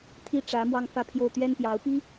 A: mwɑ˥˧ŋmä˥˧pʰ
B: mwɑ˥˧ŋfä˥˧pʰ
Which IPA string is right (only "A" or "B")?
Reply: B